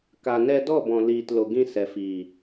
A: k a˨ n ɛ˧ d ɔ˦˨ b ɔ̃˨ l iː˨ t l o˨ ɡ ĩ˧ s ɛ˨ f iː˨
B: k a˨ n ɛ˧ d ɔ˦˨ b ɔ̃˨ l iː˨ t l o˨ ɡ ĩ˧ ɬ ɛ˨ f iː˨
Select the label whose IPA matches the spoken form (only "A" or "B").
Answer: A